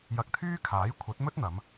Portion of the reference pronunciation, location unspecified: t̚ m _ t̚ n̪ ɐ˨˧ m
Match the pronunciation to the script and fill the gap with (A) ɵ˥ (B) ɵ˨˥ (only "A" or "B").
A